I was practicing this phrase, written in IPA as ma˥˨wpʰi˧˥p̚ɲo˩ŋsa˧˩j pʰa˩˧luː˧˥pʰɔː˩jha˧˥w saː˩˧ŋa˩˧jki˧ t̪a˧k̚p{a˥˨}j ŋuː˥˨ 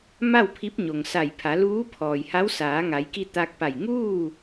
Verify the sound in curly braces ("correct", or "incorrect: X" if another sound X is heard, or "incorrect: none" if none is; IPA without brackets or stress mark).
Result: incorrect: a˧˩